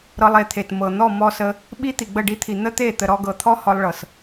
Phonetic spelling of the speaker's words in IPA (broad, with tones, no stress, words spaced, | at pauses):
ɾɤ˧lˠe˨t̪ʰe˨t mɤ˨ n̪ɔ˦˨mɔ˧sə˧ | ɓi˦ t̪i˨ɡ͡bə˦˨ɖi˧t̪ʰi˨ n̪ə˦t̪e˦˨ t̪ə˨ɾɔ˧ɡɤ˨t̪ʰɔ˦ hɔ˧lˠɭɤ˨s